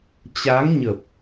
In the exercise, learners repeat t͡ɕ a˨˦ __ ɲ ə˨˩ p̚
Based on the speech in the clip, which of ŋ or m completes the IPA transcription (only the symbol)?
ŋ